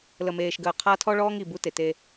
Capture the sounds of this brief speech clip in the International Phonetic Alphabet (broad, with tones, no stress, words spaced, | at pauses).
lə˨meː˨ʃɡəː˨ qʰa˦tʰɔ˦ɭɔː˦ŋ i˨ bu˦te˨te˦